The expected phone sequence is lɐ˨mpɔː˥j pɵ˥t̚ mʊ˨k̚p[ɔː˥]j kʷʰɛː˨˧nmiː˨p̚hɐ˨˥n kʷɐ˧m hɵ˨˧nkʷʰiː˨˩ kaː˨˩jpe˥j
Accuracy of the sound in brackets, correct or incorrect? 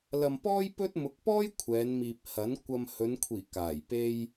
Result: correct